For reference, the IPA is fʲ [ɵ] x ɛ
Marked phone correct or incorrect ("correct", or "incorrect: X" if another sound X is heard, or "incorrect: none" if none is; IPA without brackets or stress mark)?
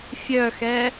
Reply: incorrect: œ